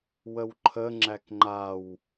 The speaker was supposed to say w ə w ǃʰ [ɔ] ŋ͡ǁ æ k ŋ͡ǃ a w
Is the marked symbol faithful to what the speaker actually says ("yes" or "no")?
no